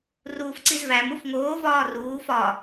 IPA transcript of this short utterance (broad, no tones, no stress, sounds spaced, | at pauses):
r uː f ǀ i z v æ m u f ŋ oː v ɒː r uː f ɒ